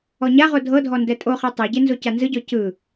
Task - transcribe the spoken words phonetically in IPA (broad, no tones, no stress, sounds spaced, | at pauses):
ɔ ɲ a ʁ o dʱ ɤ dʱ ɔ n d ɛ tʼ o χ e tˤ e ɟ e n z o c a n z ɯ ɟ ɔ c ɯ